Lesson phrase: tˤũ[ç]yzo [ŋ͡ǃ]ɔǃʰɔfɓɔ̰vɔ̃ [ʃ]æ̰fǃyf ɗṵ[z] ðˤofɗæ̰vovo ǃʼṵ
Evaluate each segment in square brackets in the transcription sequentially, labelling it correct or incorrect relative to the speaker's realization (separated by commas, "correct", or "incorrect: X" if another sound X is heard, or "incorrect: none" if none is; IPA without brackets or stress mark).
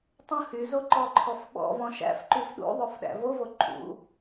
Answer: incorrect: h, incorrect: ǃ, correct, incorrect: none